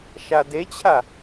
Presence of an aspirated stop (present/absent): present